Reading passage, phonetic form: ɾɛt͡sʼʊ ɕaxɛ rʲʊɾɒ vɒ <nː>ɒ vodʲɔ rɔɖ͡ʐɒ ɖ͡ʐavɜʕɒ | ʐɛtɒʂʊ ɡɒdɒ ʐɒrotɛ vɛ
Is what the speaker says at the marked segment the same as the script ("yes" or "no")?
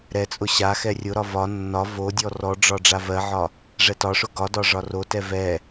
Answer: yes